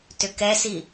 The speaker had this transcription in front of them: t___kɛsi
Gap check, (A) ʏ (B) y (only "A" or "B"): A